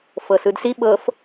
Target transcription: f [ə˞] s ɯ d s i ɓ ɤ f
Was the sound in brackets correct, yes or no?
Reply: no